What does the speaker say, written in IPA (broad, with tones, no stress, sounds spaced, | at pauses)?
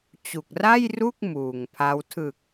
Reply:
t͡ɕ u˨˩ k̚ r a˥˩ j r u˥˩ k̚ m uː˨˩ ŋ pʰ a˦˥ w tʰ ɯ˨˩ k̚